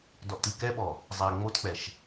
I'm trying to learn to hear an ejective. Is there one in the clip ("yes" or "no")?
no